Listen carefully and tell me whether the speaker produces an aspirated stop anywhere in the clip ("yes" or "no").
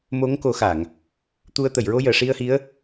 no